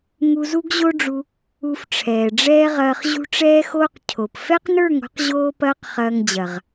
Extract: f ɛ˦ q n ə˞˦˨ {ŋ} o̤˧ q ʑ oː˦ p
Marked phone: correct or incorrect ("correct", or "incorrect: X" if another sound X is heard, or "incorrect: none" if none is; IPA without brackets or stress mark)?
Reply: correct